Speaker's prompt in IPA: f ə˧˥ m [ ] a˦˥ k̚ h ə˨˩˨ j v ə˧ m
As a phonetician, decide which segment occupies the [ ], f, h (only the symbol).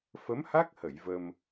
h